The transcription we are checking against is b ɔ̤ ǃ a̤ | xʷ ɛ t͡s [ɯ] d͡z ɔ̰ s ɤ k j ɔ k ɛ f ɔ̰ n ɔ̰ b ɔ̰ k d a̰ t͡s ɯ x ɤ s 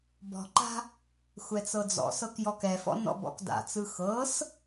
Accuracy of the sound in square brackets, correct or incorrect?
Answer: incorrect